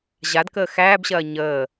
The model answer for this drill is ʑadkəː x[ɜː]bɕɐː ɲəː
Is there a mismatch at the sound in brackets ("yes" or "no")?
yes